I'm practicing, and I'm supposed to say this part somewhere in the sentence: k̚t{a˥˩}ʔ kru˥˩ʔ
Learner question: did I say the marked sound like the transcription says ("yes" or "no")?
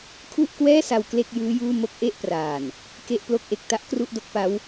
no